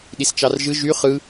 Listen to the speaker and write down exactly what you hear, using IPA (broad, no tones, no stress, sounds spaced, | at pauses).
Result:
ɗ i s t͡ʃ ɑ r ʒ ɯ ʒ y χ ɯ